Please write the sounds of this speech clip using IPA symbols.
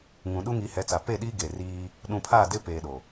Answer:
ŋũ˨ ɗu˦ŋi˨˦hɛ˨˦t͡sa˨ pe˦˨ɗi˦ ɡe˨riː˦ | ɗũ˨pʰaː˦˨dɪ˦peː˨ ɗo˨

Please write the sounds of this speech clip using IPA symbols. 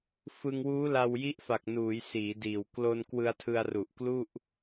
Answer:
fɯ˧ŋwuː˦˥la˧w ji˦˥ʔfa˨˩k̚ nuː˩˦jsiː˩˦diː˨˩w klo˧n kwɯ˧a̯tʰɯ˧a̯ru˨˩ʔ klu˥˩ʔ

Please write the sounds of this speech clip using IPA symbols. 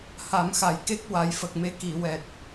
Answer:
ha˨˩˦mxa˨˩jke˦˥k̚ wa˨˩˦jfə˨˩k̚me˧ ki˨˩˨ wɛ˨˩t̚

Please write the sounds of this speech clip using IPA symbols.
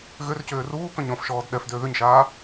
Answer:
ɣʏrcʏː ruːkœ̃ɲ ɔ̃fʃɔːd ɗɛfdʏː ðʏɲʃaː

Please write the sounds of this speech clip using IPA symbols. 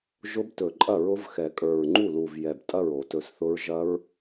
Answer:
ʒʊ˦˥btɵ˨˩˦ǃʼɐ˥˩ɹʊ˦˥v xɛ˨˩˦kʼə˞˨˩ɹŋ͡ǃu˥˩lu˨˩v jɛ˨˩b tʼɐ˥˩ɹ o˨˩˦tɵ˨˩˦sθʊ˦˥ɹ ʒɐ˦˥ɹ

